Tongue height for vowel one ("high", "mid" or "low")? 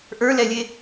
mid